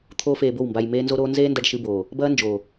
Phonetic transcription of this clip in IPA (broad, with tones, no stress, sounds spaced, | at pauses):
t̪ʰ oː˦ f eː˧ b o˦˨ w m b a˧ j m eː˦ n z o˦ ɾ oː˦ n z eː˦ n d ɐ˧ ɖ ʃ ɨ˧ b oː˨ | b ɐː˦ n d͡ʒ oː˨